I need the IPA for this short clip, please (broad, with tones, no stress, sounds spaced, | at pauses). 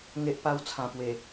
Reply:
ŋ e˦ ʔ p a˦ w t͡sʰ ã˨˩ p w e˨˩